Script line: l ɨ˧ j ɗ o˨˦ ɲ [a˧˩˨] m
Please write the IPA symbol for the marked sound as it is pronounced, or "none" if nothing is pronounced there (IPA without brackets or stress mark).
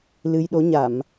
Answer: a˧˩˨